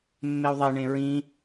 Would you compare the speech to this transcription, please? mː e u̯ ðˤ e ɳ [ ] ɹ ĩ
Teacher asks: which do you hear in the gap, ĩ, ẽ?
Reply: ẽ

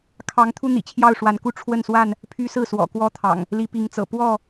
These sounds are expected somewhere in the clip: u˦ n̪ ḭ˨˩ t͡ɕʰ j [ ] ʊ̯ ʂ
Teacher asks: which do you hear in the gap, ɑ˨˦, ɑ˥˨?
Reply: ɑ˥˨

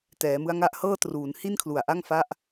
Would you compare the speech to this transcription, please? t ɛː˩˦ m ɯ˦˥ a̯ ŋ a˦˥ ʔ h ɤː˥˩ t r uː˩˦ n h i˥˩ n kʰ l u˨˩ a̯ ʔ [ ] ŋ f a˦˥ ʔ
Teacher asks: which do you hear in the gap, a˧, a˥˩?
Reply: a˥˩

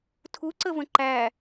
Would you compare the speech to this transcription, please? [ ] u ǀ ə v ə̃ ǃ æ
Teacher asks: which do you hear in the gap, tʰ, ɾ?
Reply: tʰ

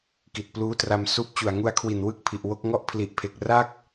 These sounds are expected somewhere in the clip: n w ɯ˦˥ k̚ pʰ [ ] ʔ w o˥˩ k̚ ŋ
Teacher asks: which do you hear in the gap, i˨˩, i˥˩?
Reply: i˨˩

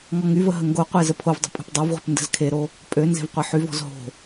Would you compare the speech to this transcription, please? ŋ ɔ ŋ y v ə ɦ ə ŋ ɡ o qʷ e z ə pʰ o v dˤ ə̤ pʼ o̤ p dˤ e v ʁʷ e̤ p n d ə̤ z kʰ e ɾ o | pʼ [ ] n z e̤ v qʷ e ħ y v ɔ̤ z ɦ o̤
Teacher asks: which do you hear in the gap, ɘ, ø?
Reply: ø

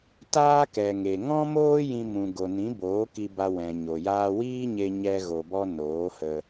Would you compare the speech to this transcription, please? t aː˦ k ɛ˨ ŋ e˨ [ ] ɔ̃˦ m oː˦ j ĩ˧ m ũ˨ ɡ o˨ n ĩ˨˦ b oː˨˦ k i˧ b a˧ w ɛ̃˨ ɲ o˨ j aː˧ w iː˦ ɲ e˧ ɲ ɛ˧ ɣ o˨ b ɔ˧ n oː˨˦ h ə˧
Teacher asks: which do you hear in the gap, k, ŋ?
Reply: ŋ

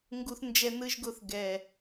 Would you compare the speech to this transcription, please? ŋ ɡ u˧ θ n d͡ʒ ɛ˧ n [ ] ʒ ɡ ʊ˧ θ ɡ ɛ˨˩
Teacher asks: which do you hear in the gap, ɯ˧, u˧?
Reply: ɯ˧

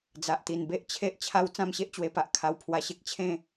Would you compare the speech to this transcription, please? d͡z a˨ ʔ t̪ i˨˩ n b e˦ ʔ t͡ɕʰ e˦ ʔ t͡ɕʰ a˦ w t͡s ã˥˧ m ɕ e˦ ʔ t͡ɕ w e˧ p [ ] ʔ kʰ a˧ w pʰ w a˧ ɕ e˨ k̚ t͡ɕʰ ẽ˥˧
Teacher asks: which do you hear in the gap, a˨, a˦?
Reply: a˨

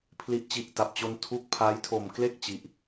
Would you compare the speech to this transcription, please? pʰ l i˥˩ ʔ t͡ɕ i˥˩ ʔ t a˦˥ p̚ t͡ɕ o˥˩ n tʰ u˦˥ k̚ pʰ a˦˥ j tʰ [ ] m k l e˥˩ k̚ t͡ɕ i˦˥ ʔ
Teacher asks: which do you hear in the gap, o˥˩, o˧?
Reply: o˧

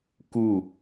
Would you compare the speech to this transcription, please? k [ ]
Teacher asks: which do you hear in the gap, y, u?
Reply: u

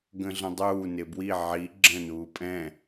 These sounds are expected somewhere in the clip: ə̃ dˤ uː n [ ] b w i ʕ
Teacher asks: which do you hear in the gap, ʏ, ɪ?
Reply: ɪ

